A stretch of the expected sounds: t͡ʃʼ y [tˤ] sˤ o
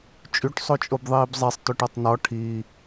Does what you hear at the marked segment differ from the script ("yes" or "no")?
yes